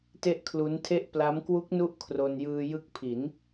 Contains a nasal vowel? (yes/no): no